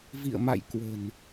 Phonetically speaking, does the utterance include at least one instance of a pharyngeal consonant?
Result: no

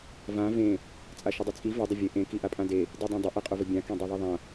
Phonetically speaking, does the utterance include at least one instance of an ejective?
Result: yes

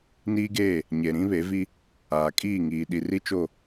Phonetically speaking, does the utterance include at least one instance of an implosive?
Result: yes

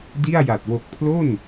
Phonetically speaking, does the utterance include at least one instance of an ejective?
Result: no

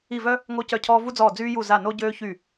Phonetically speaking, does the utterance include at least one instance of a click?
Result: no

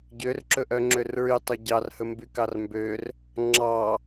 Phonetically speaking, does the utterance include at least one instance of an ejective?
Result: no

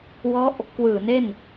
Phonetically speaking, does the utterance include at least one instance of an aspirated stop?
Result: no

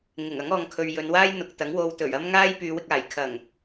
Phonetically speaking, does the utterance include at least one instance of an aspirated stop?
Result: yes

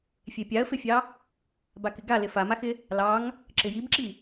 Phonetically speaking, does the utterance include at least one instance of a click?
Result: yes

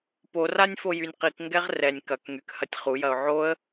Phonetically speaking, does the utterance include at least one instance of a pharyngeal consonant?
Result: yes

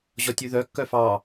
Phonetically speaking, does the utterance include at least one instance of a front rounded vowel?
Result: yes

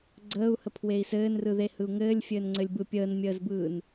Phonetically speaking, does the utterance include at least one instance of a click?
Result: yes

